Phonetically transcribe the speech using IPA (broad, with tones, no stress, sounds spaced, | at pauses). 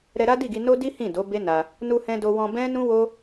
ɾ ɛ˧ ɾ a˦ d i˦˨ ɡ i˧ n o˦ d i˦ h ĩ˦˨ d o˨˦ b e˦ n a˧ | n u˧ h ɛ̃˧ d o˧ w ɔ̃˧ b ɛ̃˦ n ũ˦ w o˦